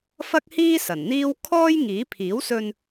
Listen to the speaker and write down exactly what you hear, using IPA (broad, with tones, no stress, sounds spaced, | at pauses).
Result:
f ɐ˥ k̚ h iː˥ s ɐ˨˩ n n̪ iː˥ w kʰ ɔː˥ j ŋ iː˨˥ pʰ iː˨˥ w s ɵ˧ n